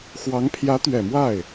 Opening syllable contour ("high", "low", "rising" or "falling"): rising